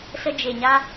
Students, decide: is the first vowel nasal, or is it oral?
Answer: oral